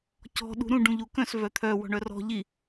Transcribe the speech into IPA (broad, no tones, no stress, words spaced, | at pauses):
cɔ̤ ɗṳɾũ ɖũʎukœ̃s vœt̪ʰœ wɔ̤ɳœrɔ̤ ʎi